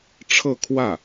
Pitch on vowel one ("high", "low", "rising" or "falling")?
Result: falling